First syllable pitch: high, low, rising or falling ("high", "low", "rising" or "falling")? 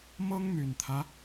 high